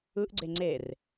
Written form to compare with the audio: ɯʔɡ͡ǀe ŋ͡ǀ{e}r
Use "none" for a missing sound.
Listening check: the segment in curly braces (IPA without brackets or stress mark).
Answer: e